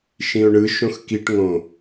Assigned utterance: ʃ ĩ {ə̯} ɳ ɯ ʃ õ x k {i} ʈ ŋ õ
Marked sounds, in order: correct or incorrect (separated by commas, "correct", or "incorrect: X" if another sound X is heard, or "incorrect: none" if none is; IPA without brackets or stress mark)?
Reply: incorrect: ʊ̯, correct